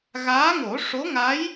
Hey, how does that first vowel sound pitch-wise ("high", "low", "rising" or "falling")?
rising